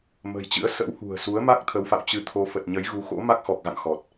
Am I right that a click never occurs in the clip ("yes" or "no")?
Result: yes